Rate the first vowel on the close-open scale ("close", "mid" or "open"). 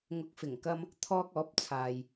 close